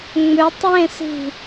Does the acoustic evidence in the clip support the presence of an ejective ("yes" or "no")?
no